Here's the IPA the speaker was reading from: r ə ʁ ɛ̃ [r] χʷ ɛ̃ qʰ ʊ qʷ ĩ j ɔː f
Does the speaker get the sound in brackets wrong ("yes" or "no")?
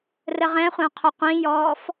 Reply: yes